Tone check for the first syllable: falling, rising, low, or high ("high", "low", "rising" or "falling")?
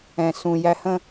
low